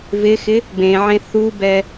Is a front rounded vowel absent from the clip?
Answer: yes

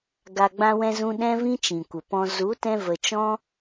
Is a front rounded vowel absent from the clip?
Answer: yes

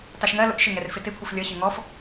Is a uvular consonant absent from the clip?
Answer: yes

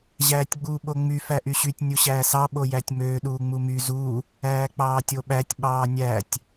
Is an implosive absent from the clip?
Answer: no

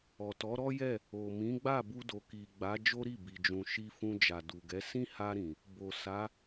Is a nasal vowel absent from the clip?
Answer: no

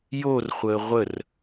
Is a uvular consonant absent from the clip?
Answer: no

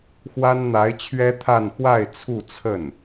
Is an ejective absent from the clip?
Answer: yes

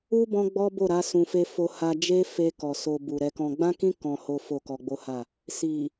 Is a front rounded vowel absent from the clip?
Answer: yes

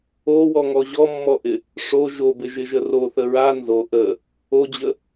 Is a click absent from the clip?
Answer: yes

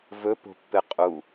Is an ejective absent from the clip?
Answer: no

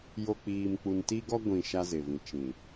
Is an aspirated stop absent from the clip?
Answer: yes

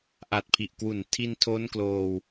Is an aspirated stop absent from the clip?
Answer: no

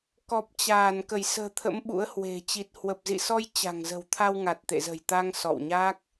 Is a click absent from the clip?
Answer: yes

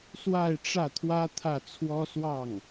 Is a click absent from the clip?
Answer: yes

